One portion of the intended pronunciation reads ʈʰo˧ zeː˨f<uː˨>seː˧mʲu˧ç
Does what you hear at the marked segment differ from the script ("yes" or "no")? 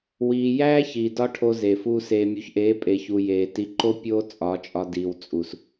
yes